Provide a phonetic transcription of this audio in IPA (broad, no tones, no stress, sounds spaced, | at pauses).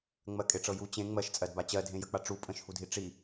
ŋ͡m ɜ kʼ e ʈ͡ʂ ɤ j u t͡ɕ ẽ ŋ͡m ɜ ʃ t͡sʼ ɜ d b a t͡ɕ ɜ dʱ ẽ j ə k͡p a ʈ͡ʂ u pʼ ə̃ ʃ h u dʱ i ʈ͡ʂ i